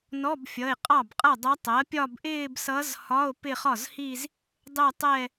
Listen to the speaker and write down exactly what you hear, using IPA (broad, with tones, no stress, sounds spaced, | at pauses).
n ɔ˧˥˧ b fʲ ʌ˩˧˩ e̯ qʼ ɑ˥˩ b qʼ ʌ˥˩ dˤ ʌ˧˥ tˤ ɜ˩˥ pʲ ɒ˥˧ b ʔ ɪː˥˧ b s ʌ˧˥ z h ɒ˧˥˧ o̯ p ɪ˥˧ χ ɒ˥˩ z h i˥˧ z | dˤ ɛ˥˧ tˤ ɛ˥˧